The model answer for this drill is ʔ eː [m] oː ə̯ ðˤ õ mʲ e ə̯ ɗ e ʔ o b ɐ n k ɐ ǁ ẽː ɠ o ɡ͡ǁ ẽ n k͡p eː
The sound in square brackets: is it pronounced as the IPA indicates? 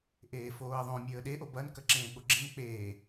no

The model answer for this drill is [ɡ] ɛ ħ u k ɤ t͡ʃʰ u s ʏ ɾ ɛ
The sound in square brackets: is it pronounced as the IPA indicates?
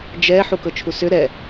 no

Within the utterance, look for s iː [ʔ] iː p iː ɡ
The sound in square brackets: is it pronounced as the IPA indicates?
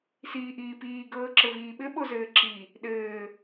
yes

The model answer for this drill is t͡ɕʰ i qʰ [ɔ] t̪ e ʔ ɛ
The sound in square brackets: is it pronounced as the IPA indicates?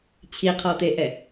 yes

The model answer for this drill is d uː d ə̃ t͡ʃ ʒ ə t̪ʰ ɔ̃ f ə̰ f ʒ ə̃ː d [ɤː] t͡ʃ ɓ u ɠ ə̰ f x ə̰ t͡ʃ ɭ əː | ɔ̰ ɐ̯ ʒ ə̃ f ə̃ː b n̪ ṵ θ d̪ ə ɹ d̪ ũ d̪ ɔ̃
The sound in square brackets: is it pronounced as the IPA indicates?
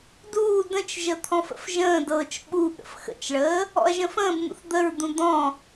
yes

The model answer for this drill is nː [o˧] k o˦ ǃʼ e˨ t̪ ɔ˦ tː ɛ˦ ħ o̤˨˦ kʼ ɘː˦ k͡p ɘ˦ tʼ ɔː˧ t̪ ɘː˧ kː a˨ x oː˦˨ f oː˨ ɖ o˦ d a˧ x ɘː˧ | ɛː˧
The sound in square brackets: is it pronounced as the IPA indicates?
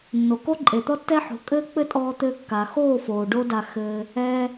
no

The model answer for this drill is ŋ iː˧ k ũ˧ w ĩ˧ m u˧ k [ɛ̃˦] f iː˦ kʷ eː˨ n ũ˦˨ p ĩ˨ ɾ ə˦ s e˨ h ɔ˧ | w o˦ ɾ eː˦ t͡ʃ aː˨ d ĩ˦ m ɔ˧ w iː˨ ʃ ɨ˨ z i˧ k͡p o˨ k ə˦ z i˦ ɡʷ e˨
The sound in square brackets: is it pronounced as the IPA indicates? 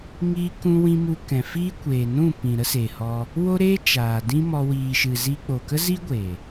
no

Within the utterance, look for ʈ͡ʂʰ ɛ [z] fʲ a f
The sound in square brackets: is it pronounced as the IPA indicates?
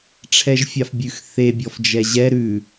no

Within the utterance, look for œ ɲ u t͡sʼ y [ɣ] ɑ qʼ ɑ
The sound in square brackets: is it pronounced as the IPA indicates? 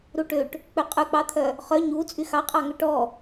no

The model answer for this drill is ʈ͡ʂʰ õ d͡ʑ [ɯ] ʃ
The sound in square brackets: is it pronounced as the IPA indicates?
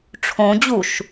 no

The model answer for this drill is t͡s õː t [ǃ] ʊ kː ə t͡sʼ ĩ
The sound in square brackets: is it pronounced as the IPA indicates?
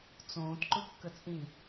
yes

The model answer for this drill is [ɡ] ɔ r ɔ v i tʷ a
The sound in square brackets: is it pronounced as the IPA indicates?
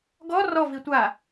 yes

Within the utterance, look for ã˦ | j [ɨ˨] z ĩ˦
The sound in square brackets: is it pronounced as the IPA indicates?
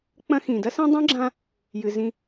yes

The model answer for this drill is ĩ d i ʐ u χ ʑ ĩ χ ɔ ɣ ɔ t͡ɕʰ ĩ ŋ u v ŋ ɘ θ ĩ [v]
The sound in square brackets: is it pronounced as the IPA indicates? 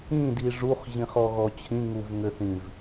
yes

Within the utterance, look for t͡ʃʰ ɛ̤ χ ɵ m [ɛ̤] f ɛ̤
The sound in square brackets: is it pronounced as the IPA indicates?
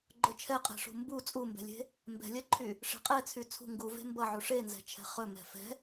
yes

